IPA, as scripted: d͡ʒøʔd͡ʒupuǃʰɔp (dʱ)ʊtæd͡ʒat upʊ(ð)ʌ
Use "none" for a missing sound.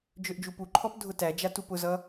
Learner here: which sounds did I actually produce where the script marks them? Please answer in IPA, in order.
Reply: dʱ, z

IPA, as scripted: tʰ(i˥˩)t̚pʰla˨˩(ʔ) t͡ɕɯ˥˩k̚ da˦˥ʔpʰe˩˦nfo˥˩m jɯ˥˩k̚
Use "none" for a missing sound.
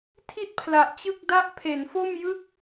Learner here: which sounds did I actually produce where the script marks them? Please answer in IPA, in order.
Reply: i˥˩, ʔ

